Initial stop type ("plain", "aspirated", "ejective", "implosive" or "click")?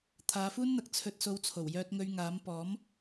aspirated